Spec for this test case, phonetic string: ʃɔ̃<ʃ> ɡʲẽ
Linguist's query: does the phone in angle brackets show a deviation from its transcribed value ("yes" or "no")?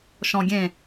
yes